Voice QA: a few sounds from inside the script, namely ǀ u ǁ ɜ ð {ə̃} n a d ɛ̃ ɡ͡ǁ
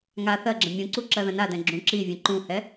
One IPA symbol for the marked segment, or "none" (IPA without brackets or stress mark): ə̃